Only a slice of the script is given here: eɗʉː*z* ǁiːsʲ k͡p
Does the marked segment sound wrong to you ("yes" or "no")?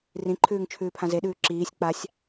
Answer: yes